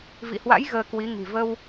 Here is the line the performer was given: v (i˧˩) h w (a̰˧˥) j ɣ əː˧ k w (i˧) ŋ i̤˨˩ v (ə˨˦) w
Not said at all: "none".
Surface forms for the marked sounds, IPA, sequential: ḭ˧˨, a̰˧˥, i˨˦, ə˧

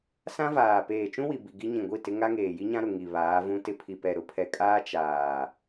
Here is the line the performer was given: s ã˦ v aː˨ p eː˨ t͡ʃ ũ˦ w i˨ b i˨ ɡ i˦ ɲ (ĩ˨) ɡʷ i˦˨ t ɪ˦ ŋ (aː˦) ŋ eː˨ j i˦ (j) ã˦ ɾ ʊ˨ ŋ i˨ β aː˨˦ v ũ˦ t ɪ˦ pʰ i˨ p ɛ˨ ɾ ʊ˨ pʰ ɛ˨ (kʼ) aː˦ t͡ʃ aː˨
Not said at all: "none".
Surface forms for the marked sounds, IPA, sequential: ĩ˨, a˦, ɲ, kʼ

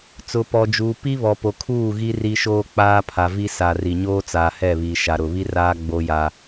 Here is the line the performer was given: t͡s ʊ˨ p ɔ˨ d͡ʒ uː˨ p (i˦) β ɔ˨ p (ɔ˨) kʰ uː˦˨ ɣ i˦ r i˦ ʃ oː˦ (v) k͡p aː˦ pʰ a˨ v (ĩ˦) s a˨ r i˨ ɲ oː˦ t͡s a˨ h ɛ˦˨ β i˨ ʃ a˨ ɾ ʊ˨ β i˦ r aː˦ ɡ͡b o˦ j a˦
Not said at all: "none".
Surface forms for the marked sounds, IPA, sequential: i˦, o˨, none, i˦

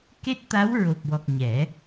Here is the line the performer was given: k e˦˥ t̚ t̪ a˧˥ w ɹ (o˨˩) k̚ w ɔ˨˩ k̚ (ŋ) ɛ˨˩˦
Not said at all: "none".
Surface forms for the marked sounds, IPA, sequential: o˨˩, ɲ

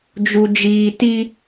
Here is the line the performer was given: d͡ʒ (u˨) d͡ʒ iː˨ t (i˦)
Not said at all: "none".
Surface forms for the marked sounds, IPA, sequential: u˨, i˦

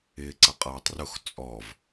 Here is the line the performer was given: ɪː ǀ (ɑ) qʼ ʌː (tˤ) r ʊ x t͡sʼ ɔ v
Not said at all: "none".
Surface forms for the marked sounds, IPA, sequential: ʌ, tˤ

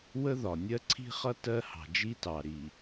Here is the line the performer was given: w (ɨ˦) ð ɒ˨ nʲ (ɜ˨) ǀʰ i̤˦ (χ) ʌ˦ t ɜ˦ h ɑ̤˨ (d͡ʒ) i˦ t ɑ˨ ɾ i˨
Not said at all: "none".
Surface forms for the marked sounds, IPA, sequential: ə˦, ɜ˦, χ, d͡ʒ

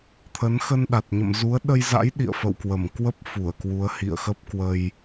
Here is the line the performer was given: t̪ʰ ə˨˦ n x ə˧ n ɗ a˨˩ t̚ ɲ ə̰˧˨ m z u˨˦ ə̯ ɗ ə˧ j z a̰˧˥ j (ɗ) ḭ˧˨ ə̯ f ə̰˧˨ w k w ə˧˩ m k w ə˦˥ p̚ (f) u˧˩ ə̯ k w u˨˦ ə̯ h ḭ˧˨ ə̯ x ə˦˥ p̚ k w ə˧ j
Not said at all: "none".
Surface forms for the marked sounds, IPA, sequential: ɗ, f

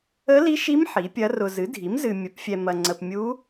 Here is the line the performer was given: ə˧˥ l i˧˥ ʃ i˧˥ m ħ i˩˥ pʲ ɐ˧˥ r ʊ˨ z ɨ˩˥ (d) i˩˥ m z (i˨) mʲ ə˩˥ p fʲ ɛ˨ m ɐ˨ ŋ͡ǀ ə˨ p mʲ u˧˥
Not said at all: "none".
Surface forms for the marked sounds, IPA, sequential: dʱ, ɨ˨

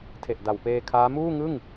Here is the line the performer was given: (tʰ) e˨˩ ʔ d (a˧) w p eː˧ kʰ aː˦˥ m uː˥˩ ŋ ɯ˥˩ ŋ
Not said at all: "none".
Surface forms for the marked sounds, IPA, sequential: tʰ, a˨˩

